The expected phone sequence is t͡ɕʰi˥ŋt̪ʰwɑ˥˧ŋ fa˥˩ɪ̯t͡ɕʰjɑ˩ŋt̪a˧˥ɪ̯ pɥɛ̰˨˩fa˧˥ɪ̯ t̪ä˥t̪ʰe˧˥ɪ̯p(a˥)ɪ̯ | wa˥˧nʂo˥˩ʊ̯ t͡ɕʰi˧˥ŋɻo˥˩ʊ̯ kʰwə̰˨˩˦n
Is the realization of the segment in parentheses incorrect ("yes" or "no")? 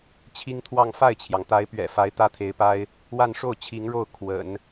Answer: no